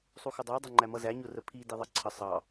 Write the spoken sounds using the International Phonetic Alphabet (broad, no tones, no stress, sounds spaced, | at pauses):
sˤ u x ʊ dˤ ə˞ dˤ ʌ ŋ͡ǃ æ m ʌ z æ ɲ ʊ r ə pʰ i d i ðˤ ʌ ǀʰ ə sˤ ɑ